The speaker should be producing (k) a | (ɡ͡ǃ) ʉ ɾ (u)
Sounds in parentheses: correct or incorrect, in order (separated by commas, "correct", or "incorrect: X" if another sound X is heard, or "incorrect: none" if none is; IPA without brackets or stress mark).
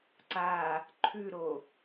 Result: incorrect: ǀ, incorrect: ǃʰ, incorrect: o